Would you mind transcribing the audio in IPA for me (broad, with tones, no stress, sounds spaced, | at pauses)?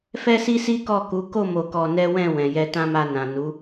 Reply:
f ɛ˦ s i˦ s i˦ k ɔ˦˨ k u˨˦ k o˦˨ m o˧ k ɔ˧ n ɛ˦ w ɛ̃˦˨ w ɛ̃˨ j ɛ˧ t ã˦ m a˧ n ã˨ n u˨˦